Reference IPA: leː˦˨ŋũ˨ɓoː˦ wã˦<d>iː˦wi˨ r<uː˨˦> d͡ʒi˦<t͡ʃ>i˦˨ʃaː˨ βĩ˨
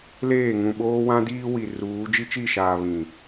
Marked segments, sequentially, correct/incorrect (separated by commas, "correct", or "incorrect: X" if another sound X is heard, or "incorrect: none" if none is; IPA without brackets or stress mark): correct, correct, correct